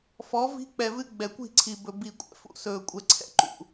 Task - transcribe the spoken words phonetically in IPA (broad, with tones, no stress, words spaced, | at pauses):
fɔ˨˦ vi̤˦k͡pɛ˨vɨ˦ ɡ͡bɛ˨kʷi̤˦˨ǀʰi˨bɵ˨ bi˨kʷʼɛ̰˨fṵ˨ sɵː˨kʷʼɛ˨ǀʰɛ̰˦ ǃṵ˨